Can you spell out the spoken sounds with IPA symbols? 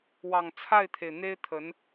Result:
w ɑ˨˩ ŋ t͡sʰ a˥˩ ɪ̯ t̪ʰ e˩ ɪ̯ n̪ e˥ ɪ̯ t̪ʰ ə˧˥ n

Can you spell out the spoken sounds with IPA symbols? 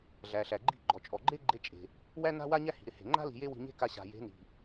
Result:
ɮ æ˨ ɬ æ˨ ɡ͡ǃ i̤˦˨ ɡ͡ǃ ɔ˨ t͡ʃʼ ɔ˨ ɡ͡ǃ e˦ ɡ͡ǃ e˧ t͡ʃʼ e̤˨ | w æ˦ n a̤˦ w a˦ ɲ æ˦ h i̤˨ ɾ ɪ˧ h e̤˨ ŋ͡ǃ a̤˦ l i̤˧ j e˦ w i̤˧ ɲ e̤˦ k a˧ ɕ a̤˨ j e̤˨˦ n i̤˨

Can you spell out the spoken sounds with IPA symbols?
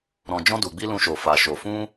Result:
ɾ ɔ̃˨ d͡ʒ ɔ̃˧ d u˨ ɡ͡b i˧ l ũ˧ ʃ o˨ f a˨ ʃ o˨ f ũ˧

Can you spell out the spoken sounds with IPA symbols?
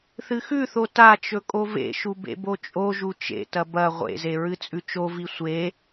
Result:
θ ɨ x ʉ θ o t a t͡ʃ ɵ kʼ o v ḛ ʃ u b ḛ b o t͡ʃʼ o ʒ u t͡ʃ ḛ t ɐ b ɐ ʁʷ ḛ z e ɹ ɨ t͡sʼ ʉ t͡ʃ o v i sʷ e

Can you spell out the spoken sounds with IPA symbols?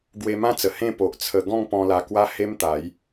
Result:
ɡ w e˧ m ã˦ t͡s ə˨˩ h ẽ˥˧ p o˨ ʔ t͡sʰ ə˧ ɡ ɔ̃˥˧ ŋ p ɔ̃˧ l a˧ k w a˦ h e˦ m t̪ a˨˦ j

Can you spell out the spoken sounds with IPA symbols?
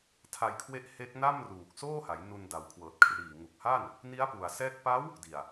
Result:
tʰ a˧ j kʰ w e˦˥ ʔ h e˦˥ k̚ n a˥˩ m r uː˨˩ k̚ s oː˥˩ h a˩˦ j n u˧ n d a˨˩ w kʰ w ɤː˨˩ t̚ kʰ r iː˨˩ ŋ u˨˩ k̚ h a˥˩ n | n i˦˥ a̯ p u˨˩ a̯ s ɛː˦˥ k̚ p a˦˥ w | d i˨˩ a̯

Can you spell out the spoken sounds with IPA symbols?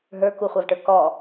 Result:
ɦ ə˞ k u χʷ a v ʈ ə˞ k ɔ

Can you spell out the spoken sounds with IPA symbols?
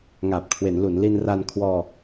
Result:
ŋ aː˨˩ p̚ kʰ w e˩˦ n l u˩˦ n l i˧ n r a˧ n kʰ w ɔː˧

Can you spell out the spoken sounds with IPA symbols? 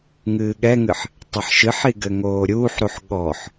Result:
ŋ ɨː ɠ ɛ ŋ ɨ ħ | tˤ ɘ ħ ʃ ɨ ħ i ɡ ɘ ŋ oː ɾʲ uː ħ ɾ u ħ ɠ ɔ ħ

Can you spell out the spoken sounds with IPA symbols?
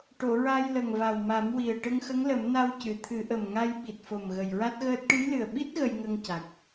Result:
ʈ o˨˩˨ ɹ a˧ j l ə˨˩ ŋ v a˨˩ w m a˨˩˦ m w i˨˩ ə̯ ʈ ə˧ ŋ x ə˧˥ ŋ l ə˨˩˦ m n a˧ w c ɨ˨˩˨ t̪ʰ ɨ˨˩˦ ʔ ə˨˩ m ŋ a˧ j ɓ i˨˩ t̚ f o˨˩ m ɣ ə˨˩ j ɹ a˦˥ t̚ ɣ əː˦˥ t̚ ʈ ɨ˧˥ j l ɨ˨˩ ə̯ ɓ i˦˥ t̚ ɣ ə˧ j ŋ ə˧ ŋ c a˨˩ k̚

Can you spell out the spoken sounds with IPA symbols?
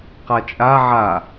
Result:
q a t͡ʃʼ a ʕ a

